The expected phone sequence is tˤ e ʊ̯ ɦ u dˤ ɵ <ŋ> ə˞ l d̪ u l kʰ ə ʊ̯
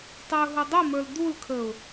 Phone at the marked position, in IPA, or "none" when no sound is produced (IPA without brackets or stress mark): m